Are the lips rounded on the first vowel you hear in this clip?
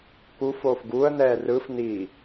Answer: yes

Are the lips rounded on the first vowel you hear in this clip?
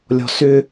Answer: yes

